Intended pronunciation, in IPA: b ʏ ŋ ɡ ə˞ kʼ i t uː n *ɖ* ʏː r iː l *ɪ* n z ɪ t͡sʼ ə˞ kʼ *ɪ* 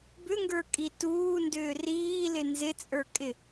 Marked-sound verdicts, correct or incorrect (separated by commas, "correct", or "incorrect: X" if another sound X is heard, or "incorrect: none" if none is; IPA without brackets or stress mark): incorrect: d, correct, correct